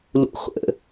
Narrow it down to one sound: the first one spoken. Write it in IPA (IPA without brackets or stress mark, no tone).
l